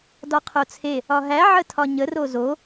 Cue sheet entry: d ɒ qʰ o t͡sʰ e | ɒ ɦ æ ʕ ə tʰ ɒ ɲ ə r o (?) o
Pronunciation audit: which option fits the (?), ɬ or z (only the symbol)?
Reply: z